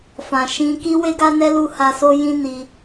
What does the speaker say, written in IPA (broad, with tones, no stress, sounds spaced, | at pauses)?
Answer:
f ã˨ ʃ ĩ˧ k i˦ w e˦ ɡ a˦ n ɛ˦ l u˦˨ h a˧ s o˦ j ĩ˦ n i˧